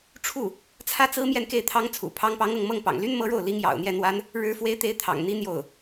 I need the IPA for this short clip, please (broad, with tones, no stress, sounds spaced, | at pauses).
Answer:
ʈ͡ʂʰ u˥˩ | t͡sʰ ä˥ t͡s ɹ̩˥ m j ɛ˥˧ n k e˥˩ ɪ̯ t̪ʰ ɑ˥ ŋ t͡sʰ ṵ˨˩ pʰ ɑ˧˥ ŋ p ɑ˧˥ ŋ ɤ˥˧ ŋ m ɤ˥˩ ŋ p ɑ̰˨˩ ŋ l y˥ n m ɤ˥ ɻ o˥˩ ʊ̯ l i˧˥ ŋ j ɑ̰˨˩ ʊ̯ n̪ j ɛ˥˩ n̪ w a˥ n | ɻ ɻ̩˧˥ f w e˧˥ ɪ̯ t̪ e˧˥ ɪ̯ t̪ʰ ɑ̰˨˩ ŋ n̪ i˥ n̪ j o˥˩ ʊ̯